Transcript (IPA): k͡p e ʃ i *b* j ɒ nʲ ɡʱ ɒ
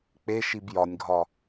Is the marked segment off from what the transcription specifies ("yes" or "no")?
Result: no